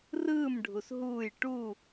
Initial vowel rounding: unrounded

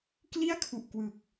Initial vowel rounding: unrounded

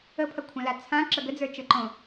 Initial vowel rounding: unrounded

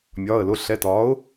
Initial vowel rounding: rounded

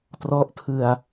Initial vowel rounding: rounded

